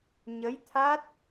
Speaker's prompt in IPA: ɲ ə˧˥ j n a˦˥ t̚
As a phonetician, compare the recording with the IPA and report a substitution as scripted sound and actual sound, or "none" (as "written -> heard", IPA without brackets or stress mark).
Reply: n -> t̪ʰ